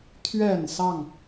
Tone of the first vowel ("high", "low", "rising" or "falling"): low